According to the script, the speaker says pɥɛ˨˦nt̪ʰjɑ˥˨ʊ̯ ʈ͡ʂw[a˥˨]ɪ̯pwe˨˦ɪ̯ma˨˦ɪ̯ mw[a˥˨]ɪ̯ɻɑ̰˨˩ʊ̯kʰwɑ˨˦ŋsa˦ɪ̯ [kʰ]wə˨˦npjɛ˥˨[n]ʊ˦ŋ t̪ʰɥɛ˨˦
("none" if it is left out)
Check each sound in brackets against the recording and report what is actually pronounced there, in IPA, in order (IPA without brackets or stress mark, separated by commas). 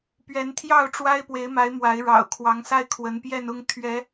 a˦, a˨˦, kʰ, n